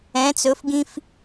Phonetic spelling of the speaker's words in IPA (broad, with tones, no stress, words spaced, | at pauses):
ɛ̃˧˥t͡sɵ˧˥fɡĩ˥f